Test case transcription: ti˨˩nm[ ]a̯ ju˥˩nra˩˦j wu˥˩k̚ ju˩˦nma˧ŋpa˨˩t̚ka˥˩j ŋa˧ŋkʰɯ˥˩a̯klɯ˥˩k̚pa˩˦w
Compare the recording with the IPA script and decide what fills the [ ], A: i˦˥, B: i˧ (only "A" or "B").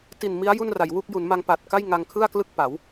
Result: A